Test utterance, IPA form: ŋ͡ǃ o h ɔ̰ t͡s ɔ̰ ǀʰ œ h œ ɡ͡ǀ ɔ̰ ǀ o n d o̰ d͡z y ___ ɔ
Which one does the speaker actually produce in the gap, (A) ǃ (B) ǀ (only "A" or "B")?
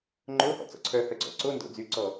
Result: B